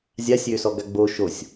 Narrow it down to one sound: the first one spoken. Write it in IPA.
zʲ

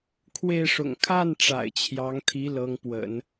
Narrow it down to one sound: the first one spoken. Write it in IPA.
kʰ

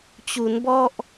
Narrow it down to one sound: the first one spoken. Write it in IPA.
t͡ɕ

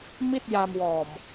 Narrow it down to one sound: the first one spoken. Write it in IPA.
m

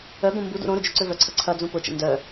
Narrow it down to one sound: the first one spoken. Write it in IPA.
œ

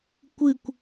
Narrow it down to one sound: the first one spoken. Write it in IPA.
kʷ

